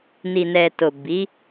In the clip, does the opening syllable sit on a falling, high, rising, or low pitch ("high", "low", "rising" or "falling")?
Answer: low